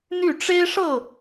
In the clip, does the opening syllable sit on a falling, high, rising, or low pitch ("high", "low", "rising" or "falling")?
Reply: falling